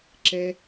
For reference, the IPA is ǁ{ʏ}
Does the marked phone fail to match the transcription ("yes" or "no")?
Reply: yes